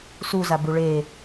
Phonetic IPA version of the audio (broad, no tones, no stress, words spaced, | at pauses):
suzabu ɭe